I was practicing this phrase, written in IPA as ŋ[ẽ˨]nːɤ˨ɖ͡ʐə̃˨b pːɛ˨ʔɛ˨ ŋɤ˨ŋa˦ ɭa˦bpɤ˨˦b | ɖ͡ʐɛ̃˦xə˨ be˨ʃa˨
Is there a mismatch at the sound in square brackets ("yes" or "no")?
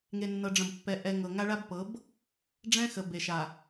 yes